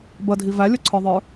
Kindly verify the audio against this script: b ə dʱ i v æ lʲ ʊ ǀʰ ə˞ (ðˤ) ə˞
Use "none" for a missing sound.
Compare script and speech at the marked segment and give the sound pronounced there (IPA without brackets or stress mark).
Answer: ðˤ